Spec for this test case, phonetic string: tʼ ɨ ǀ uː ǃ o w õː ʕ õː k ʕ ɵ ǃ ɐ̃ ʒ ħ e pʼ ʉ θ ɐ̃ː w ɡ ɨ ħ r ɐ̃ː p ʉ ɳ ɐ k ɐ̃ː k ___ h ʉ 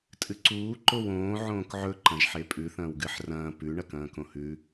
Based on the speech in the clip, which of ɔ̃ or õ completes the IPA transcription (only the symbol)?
õ